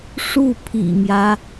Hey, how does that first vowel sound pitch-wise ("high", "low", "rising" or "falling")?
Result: falling